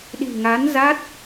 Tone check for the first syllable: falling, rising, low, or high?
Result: low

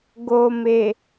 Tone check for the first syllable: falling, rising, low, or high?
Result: low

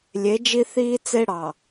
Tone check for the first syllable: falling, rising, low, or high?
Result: rising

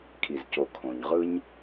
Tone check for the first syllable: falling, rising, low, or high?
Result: low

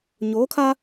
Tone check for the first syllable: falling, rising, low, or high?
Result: rising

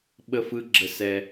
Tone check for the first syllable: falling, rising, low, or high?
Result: high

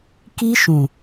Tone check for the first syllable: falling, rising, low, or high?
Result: high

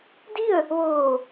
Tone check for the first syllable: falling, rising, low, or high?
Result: falling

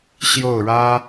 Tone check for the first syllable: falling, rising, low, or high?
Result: falling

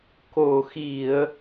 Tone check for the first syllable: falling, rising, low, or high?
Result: low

